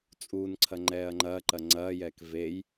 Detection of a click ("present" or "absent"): present